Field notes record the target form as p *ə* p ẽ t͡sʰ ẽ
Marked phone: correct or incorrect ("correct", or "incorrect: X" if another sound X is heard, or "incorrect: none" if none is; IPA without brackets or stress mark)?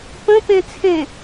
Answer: incorrect: ə̃